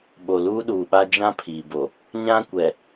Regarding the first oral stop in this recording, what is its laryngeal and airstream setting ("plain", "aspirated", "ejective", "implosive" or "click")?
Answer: implosive